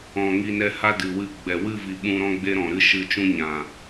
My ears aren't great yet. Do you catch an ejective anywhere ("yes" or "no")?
no